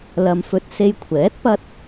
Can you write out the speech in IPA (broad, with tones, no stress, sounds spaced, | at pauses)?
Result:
l ɐ˨ m f ɵ˧ t̚ s e˧ j kʷʰ ɛː˨˥ t̚ p ɐ˧ t̚